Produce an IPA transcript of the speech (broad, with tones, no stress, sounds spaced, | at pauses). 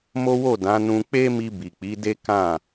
m o˦ w o˦˨ d ã˨˦ n ũ˧ k͡p e˦ m i˧ b i˨ k͡p i˨˦ d e˦ k ã˦˨